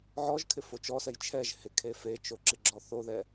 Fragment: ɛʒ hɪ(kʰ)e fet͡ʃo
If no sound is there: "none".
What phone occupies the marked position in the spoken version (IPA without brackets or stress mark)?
kʰ